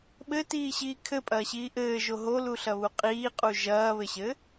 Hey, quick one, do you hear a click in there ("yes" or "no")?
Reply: no